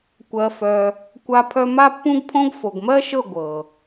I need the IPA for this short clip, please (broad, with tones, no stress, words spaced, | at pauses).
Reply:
kʷɜ˧fœ˧ | kʷa˦pʰœ˦ ma˦pːũ˦ɡpʰõ˦ɡ fo˨ɡmɜ˦ʃɤ˦˨ ɡʷɤ˨